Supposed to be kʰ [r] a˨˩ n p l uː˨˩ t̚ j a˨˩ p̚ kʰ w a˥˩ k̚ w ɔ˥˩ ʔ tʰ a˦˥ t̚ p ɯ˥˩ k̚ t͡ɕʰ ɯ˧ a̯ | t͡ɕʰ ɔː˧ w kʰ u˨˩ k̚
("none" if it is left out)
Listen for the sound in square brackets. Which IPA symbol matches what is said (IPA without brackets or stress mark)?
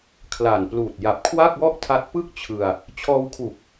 l